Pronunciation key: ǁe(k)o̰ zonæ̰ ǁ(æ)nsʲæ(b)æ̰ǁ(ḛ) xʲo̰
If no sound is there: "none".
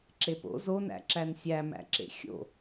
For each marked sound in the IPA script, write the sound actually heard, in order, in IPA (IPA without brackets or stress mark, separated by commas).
p, æ, m, ḛ